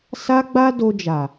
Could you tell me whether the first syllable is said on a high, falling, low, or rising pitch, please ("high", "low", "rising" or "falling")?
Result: high